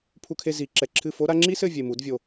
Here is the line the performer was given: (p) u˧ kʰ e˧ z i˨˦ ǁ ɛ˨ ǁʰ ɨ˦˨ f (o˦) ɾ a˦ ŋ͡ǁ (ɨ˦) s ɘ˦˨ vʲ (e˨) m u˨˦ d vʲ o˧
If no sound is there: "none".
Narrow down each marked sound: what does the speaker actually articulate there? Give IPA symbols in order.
pʰ, o˦, i˦, e˨

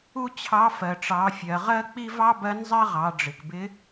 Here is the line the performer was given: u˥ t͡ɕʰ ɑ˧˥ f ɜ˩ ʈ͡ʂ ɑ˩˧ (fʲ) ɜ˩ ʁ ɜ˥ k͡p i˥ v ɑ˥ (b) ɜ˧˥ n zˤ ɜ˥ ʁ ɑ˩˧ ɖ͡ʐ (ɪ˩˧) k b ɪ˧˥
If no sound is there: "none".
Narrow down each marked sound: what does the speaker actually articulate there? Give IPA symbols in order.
fʲ, b, ɪ˩

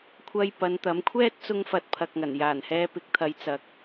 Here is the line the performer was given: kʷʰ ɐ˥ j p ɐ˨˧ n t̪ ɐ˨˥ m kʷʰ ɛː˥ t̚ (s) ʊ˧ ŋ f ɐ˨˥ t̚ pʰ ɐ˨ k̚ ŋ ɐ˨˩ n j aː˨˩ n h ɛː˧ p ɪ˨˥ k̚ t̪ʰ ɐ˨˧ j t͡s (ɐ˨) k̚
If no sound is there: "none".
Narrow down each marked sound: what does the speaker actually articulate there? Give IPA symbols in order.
t͡s, ɐ˨

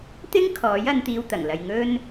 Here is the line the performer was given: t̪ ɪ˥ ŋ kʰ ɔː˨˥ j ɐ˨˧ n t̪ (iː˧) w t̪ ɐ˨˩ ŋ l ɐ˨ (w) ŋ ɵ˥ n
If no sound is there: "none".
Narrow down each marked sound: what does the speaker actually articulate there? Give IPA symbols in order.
iː˧, j

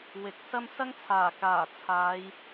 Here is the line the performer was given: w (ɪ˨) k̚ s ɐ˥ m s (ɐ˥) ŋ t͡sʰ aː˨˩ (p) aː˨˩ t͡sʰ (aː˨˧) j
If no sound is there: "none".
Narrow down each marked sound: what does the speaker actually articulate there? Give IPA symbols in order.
ɪ˨, ɐ˥, k, aː˨˧

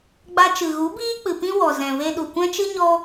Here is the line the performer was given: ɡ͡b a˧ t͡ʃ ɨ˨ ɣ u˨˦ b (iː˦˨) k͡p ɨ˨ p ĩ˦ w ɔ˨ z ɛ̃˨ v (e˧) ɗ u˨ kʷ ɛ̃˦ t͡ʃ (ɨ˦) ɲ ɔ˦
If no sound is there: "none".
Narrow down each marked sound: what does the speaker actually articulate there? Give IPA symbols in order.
iː˦, e˧, ɨ˦

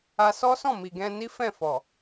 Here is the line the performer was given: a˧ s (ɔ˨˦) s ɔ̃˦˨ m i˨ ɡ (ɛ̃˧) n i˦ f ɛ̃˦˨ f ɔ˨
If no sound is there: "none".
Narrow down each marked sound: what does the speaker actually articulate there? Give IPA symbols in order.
ɔ˦, ɛ̃˧

